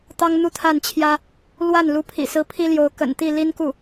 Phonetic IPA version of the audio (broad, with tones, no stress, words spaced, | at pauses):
t̪ɑ˥ŋ n̪u˥˧t̪ʰa˥˩nt͡ɕʰjä˥ | lwa˥˩n lu˧˥pʰḭ˨˩sɹ̩˧˥ pʰi˥ljo˧˥ʊ̯ kə̰˨˩nt̪i˥˩ li˥nku˥˩